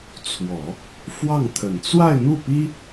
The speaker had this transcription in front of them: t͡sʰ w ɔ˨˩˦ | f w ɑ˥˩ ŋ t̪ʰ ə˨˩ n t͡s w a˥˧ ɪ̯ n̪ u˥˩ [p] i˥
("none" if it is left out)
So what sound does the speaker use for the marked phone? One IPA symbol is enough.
p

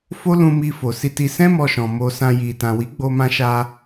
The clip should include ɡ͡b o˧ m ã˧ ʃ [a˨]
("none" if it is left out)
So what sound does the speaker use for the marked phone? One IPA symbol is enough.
a˧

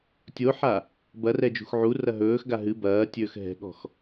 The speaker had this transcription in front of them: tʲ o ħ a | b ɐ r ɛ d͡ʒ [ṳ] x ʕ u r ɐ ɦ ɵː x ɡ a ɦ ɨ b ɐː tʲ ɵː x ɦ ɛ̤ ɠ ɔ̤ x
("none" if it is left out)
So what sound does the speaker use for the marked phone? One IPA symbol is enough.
ṳ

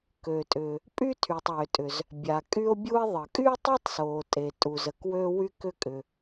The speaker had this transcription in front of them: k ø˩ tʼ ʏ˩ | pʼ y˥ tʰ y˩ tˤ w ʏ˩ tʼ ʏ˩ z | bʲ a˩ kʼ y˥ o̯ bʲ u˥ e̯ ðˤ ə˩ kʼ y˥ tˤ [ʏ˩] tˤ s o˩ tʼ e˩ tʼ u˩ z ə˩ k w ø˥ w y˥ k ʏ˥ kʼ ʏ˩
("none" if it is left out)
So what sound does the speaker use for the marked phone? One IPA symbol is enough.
ʏ˥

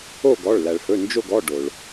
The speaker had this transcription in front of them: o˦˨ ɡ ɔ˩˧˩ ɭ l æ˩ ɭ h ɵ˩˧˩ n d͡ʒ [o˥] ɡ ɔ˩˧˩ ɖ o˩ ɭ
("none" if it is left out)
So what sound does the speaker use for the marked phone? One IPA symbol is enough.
o˦˨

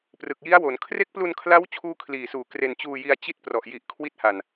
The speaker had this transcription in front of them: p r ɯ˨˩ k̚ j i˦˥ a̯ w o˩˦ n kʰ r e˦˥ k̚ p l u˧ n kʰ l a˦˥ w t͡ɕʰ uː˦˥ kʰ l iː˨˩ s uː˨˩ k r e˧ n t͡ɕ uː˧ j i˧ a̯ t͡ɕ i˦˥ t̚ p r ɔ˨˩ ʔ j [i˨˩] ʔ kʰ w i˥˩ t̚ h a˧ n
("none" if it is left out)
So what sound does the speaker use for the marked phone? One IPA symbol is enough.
i˨˩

